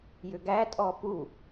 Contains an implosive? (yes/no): no